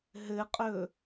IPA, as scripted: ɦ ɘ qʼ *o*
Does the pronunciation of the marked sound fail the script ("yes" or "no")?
yes